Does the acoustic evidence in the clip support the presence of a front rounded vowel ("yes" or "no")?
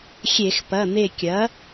no